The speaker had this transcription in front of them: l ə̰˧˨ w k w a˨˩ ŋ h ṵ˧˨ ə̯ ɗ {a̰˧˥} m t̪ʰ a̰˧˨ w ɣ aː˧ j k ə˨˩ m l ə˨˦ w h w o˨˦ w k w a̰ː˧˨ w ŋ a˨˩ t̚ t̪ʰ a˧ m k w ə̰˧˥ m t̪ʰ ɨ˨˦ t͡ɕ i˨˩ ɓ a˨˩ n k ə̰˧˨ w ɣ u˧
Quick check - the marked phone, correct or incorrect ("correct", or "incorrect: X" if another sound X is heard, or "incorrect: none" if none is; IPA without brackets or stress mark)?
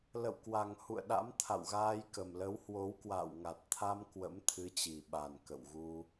correct